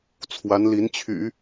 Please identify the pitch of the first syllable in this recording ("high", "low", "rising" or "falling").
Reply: rising